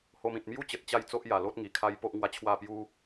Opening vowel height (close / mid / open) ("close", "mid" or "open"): mid